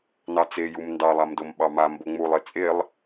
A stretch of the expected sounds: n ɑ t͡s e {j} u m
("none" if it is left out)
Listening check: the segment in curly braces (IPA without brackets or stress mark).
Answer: j